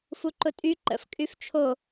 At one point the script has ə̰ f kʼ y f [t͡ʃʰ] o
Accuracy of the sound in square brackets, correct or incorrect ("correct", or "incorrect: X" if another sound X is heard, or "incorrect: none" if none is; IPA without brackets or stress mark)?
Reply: correct